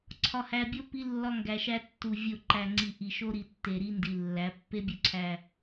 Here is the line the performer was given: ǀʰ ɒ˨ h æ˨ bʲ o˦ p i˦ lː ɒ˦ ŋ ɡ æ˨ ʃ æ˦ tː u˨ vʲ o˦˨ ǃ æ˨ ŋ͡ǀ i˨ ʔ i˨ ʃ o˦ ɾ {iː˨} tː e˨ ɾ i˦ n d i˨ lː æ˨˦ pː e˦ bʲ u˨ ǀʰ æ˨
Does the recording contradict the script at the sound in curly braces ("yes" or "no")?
yes